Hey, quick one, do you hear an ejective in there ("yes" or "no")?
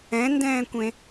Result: no